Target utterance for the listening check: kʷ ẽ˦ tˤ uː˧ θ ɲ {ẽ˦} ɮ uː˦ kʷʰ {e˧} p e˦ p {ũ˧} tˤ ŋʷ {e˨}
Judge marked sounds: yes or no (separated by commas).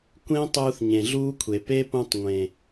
no, no, yes, no